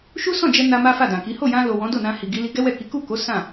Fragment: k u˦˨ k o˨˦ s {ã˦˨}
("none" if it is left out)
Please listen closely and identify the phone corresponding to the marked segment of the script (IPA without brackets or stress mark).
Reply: ã˦˨